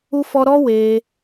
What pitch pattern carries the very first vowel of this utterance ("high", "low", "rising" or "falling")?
high